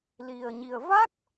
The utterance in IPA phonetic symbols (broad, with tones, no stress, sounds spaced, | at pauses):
l i˧ ə̯ ɲ i˧ ə̯ v a˦˥ k̚